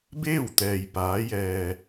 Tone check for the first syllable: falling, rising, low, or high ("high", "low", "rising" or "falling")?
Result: falling